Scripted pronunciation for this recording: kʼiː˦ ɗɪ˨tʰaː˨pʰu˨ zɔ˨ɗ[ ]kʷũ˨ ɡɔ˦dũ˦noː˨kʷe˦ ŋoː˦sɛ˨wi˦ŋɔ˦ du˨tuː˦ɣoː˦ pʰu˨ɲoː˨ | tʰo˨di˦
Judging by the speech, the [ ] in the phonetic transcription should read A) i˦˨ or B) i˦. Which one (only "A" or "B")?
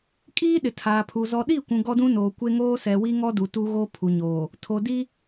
A